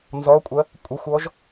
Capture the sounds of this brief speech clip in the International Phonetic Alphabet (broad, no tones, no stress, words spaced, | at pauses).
nzɔkʷʼɐ | kʷʼɘxʷɔʒ